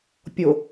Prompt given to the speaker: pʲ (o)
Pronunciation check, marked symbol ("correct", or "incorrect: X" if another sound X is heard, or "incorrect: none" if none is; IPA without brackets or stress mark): correct